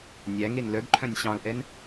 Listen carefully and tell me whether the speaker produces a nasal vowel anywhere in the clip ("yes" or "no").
yes